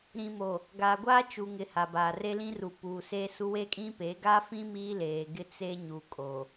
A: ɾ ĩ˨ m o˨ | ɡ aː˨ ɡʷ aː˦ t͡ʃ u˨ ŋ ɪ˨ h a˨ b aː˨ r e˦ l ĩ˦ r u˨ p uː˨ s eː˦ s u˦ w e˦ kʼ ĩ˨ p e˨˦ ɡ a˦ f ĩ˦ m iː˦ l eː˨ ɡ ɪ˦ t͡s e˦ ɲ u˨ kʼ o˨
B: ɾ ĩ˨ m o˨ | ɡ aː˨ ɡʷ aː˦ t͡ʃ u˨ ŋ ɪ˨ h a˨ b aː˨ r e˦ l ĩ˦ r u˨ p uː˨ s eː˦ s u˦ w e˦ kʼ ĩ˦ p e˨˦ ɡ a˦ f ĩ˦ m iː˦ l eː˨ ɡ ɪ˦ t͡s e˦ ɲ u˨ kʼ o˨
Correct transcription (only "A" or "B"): B